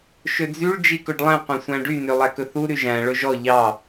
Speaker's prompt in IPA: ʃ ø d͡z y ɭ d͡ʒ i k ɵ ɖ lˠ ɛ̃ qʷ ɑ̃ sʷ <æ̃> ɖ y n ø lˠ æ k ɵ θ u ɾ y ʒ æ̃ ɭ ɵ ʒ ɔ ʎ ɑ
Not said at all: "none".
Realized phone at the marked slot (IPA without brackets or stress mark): æ̃